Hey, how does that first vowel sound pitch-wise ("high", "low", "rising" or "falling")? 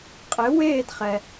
rising